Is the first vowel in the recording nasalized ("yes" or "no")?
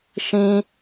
yes